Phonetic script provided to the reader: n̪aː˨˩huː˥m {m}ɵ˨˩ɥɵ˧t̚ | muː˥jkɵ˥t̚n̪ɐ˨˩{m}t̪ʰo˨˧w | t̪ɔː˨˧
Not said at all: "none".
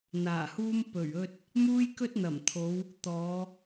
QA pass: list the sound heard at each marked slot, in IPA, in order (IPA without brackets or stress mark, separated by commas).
p, m